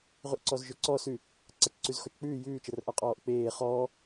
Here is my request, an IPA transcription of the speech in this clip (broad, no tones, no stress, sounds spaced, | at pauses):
ʁ ʉ ʔ ǀ ɔ z ʒ ɵ ǀ ɔ s ʉ | ǀ a t͡ʃ ǀ ʉ z x ɔ t͡ʃ k͡p ʉː j ʉː t͡ʃ ə r ʔ a qʼ ɔː ʔ k͡p eː χ ɔː